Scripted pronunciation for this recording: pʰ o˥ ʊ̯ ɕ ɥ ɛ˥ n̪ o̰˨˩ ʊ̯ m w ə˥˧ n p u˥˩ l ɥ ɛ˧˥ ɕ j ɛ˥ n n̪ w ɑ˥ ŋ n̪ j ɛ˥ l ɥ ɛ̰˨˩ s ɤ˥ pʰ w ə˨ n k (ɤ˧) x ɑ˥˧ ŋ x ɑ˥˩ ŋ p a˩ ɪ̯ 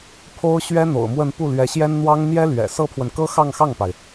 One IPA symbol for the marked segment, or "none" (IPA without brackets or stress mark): ɤ˥